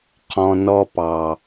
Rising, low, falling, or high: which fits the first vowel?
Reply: low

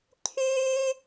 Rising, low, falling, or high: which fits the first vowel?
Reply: high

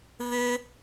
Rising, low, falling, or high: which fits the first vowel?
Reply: high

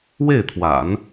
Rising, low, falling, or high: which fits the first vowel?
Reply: falling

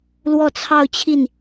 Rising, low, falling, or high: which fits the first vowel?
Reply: falling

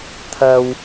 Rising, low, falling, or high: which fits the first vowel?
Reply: low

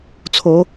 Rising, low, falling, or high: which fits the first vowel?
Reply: rising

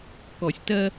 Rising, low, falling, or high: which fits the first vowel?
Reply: low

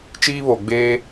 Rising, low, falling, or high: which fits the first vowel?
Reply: high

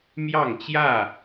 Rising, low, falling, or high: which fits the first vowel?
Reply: falling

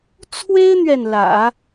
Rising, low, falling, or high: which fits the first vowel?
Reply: high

